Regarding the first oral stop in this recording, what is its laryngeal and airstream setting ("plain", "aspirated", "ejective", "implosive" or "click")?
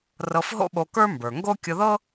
implosive